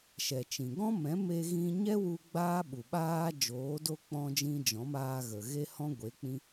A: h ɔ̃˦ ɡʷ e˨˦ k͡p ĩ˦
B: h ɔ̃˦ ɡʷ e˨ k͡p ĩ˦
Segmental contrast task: A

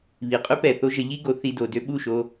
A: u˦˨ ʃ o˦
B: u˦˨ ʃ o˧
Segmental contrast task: B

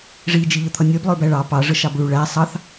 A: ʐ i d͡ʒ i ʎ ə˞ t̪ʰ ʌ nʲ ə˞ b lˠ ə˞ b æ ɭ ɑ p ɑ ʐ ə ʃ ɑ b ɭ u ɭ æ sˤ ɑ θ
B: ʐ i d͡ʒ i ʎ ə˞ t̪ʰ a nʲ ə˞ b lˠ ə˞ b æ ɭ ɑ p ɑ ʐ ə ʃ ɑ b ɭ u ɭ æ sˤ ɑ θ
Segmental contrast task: A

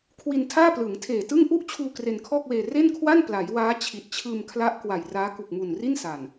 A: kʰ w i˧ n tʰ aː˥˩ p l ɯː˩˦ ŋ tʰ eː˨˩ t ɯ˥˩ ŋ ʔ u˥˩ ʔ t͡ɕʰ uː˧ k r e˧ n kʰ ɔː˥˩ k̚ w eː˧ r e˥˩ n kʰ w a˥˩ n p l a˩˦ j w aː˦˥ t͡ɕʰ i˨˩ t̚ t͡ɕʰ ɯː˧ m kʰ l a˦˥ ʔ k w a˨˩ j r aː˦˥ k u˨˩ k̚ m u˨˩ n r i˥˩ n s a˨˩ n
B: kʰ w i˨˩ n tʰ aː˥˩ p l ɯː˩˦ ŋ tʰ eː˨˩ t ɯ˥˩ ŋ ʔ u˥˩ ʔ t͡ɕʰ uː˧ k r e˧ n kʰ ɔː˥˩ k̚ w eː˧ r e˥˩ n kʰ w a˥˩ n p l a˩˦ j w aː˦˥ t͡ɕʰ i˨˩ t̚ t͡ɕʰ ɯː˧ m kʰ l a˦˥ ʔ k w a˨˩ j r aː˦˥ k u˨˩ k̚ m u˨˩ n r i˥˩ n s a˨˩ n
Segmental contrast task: A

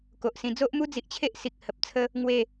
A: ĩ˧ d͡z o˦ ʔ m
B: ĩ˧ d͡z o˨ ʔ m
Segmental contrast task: A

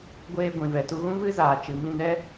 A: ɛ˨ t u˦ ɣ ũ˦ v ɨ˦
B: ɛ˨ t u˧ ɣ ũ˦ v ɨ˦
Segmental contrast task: B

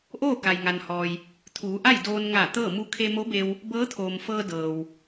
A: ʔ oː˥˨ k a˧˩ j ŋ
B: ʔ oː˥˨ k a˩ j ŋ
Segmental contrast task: B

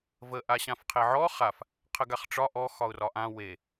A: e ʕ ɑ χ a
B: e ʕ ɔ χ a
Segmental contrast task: B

